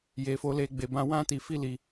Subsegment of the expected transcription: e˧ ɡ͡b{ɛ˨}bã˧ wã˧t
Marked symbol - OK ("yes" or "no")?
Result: no